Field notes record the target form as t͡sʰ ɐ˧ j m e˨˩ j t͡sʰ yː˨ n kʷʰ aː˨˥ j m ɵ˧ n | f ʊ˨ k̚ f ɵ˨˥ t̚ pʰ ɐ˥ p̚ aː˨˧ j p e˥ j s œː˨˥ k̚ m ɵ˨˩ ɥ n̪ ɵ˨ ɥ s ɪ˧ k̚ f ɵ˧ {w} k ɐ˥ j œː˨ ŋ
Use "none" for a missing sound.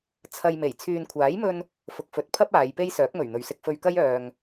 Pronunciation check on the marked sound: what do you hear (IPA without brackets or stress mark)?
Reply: ɥ